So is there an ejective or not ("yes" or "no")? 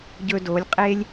yes